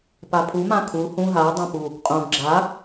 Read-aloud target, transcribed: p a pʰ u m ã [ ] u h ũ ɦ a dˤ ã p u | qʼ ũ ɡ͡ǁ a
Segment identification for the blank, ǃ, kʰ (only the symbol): kʰ